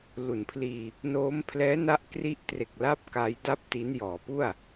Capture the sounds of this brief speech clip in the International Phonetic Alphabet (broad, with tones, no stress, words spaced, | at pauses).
lu˩˦npʰliː˧ | noː˦˥m pʰlɛː˦˥na˦˥ʔ kri˦˥ʔtre˨˩k̚ la˦˥p̚ ka˦˥jda˥˩p̚ ti˦˥n jɔː˩˦pu˥˩a̯